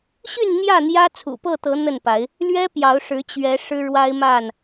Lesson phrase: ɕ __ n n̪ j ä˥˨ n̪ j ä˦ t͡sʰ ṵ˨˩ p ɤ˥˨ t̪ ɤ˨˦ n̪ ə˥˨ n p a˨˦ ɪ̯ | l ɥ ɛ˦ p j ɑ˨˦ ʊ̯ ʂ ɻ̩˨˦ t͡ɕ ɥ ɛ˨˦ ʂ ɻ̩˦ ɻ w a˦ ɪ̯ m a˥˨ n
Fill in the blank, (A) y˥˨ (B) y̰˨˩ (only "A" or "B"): A